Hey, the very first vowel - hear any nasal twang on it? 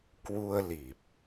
no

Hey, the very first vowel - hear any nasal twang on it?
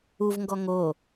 no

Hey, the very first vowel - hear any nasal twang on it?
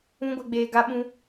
yes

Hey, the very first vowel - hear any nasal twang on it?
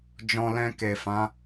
yes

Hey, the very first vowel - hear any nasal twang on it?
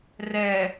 no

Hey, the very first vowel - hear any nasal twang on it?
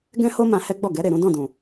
yes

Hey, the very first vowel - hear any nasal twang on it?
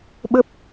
no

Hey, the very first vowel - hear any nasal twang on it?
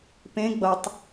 yes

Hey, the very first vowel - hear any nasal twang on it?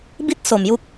no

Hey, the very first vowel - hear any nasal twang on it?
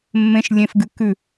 yes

